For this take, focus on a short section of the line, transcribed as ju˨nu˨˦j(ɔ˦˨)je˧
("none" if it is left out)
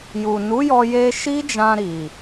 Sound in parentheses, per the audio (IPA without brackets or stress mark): ɔ˧